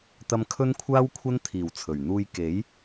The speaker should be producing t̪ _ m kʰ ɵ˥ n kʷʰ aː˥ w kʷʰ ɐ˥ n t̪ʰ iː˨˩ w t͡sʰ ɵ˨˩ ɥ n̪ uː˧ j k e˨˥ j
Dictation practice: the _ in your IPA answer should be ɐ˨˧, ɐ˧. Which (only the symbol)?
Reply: ɐ˧